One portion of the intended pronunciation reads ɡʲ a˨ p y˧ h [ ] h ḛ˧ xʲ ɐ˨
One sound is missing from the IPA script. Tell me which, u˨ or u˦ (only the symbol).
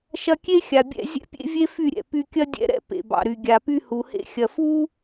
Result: u˨